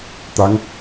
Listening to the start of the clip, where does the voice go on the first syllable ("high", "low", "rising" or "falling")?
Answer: rising